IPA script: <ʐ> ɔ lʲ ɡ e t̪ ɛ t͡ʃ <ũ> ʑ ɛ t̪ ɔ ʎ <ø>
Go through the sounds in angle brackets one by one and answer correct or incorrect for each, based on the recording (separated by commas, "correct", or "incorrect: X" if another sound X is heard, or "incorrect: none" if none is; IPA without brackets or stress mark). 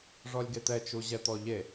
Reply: correct, incorrect: u, incorrect: e